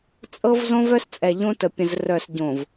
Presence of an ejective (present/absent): present